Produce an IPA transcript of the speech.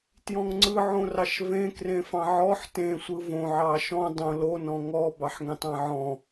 t j ɔ̃ ŋ ŋ͡ǀ ɯ ʕ õ r ɑ ʃ v ẽ k r ẽ f ɑ̃ ʕ ɔ ħ t ẽ sʷ ɯ v õ ʕ ɑ ʃ ɔ̃ dˤ õ l o n ɔ̃ ŋ ɔ b ɑ ħ ŋ ẽ tˤ ɑ̃ ʕ ɔ̃

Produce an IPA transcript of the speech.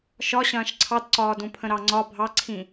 ʃ ɒ ɕ ɐ̃ː ʃ ǀʰ ɑ d ǀ ɒː d ũ pʰ ə̃ ɾ ɑ ŋ͡ǀ ɒ bʱ ɑ ǀʰ ĩ

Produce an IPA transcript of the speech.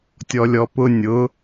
tʲ ɔ lʲ ɔ p ʊ nʲ ʊ

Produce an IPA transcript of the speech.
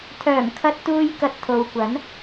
t̪ʰ œː˨˩ m kʰ ɐ˧ t̚ t̪ uː˧ j k ɐ˧ t̚ t̪ʰ o˨ w kʷ ɐ˨˥ n

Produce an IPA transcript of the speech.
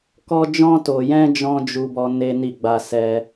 k ɔ˧ d͡ʒ ɔ̃˧ t o˨ j ɛ̃˧ d͡ʒ ɔ̃˦ d͡ʒ u˧ b ɔ˧ n e˦ n i˦˨ ɡ͡b a˧ s ɛ˦

